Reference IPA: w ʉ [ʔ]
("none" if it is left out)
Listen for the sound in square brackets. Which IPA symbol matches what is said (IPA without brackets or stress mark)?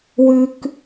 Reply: k